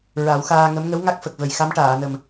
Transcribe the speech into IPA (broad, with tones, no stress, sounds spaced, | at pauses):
ɹ a˨˩˦ w x aː˧ ŋ ə˧˥ m ŋ ə˧˥ w ŋ a˦˥ k̚ f ə˨˩ k̚ v ə˨˩ j x a˧˥ m ʈ aː˨˩˨ n ə˨˩ m